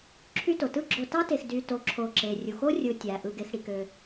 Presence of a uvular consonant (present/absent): absent